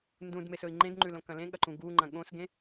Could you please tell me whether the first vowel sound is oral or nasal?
nasal